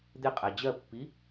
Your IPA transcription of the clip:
d̪ɪqʼæ d͡ʑɜpːi

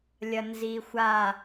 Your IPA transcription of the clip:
lʲɐnzixʷa

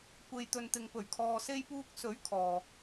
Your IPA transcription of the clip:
kʷe˨jt̪ɵ˨nt̪ɪ˨ŋ pɵ˨˩ɥkʰɔː˨se˧jpuː˧k̚ sɵ˨˥ɥ kʰɔː˨

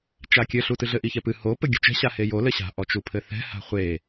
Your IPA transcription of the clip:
t͡ʃakʲɘ ɬutɨɮɘ ʔiçɛpɨ ho pɘɡʲo̤t͡ʃɛ̤ ɕahejo lɘɕa̤ ʔɔt͡ʃupʰɘθɛ̤ ha̤χʷe

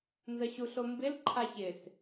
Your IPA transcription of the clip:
nzəɕuɬombɪl ǃʰaçɪs

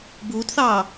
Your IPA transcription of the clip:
buːtθɑː

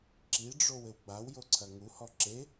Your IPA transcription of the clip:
ǁiɖ͡ʐow ɘwɡ͡bawjo ǀʰɐŋuhɔ ǁe

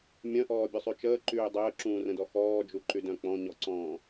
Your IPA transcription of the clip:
mʲœ̃ʔɔːbʲusˤy t͡ʃəːǃyː dˤəːǁũːrə̃dɔ xɔːd͡ʒuǃydœ̃ k͡pɔ̃ɲɔǀɔ̃ː

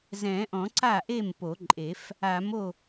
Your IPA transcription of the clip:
zɛ̃˨˩˦ʔɔ̃˨˩˦ ǀa˥˩ʔe˥˩m po˨˩˦ǃʼe˨˩˦f | a˨˩˦mo˥˩

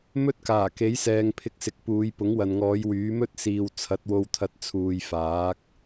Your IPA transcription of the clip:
mɵ˥t̚kaː˨˩ke˨˥jsɛː˨ŋ pʰɪ˧k̚sɪ˨k̚puː˨˧j pʊ˨˥ŋwɐ˨nŋɔː˨˧j wyː˨˥mɵ˥t̚siː˨w t͡sʰɐ˨˥t̚wo˧wt̪ʰɐ˧t̚ t͡sʰuː˨jfaː˨˥k̚

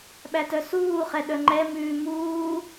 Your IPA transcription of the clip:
ɓætœsuːχɛ ɗœŋ͡ǃɛmʉː muː

